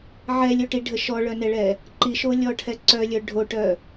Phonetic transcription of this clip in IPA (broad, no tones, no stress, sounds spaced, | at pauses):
ʕ ɛ lʲ o ʈ i ɖʱ ə ʃ ɔ ɭ œ n ɛ ɭ ɛ | ǃ i ʃ o lʲ ɔ ʈʰ ɛ ǀ œ lʲ œ ɖʱ o ʈ œ